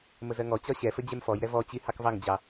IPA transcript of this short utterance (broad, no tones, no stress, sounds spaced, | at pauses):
m ə z ɜ ŋ ɔ t͡ɕ ɒ ɕ ɛ f ə d͡ʑ ɛ m f ɔ j ɾ ɛ v ɔ t͡ɕ i h ɑ k v ɑ ŋ d͡ʑ ɑ